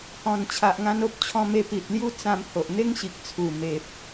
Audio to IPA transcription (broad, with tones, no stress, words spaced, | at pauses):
hɔ̃˨˩n t͡ɕʰa˨ʔŋã˧no˦p̚t͡ɕʰɔ̃˧ me˧pi˨t̚lju˦ t͡sã˧mho˨ʔ n̪e˦ŋ ɕi˨k̚t͡sʰu˨˩ me˨p̚